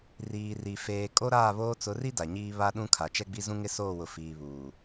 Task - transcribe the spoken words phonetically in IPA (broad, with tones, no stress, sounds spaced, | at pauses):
r iː˨ r i˨ f eː˨ kʼ o˦ ɾ aː˦˨ β oː˦ t͡s ʊ˨˦ r i˦ d a˨ ɲ iː˦ β a˦ ɗ ũ˦ kʰ a˨ t͡ʃ ɛ˦ ɡ͡b i˦ z ũ˦ ŋ ɪ˦ s oː˦˨ w ʊ˨ f iː˨ β uː˨